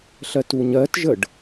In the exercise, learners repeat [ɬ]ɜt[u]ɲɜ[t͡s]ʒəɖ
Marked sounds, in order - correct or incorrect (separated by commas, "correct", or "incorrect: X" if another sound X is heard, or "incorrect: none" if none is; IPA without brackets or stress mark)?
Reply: correct, correct, incorrect: t